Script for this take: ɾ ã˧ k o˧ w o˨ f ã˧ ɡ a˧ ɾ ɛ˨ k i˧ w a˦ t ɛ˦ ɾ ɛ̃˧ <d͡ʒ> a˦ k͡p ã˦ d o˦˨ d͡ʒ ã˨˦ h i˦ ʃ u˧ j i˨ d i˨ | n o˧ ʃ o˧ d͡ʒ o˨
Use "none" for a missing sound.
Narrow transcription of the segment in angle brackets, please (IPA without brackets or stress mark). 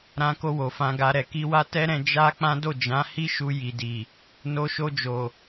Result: d͡ʒ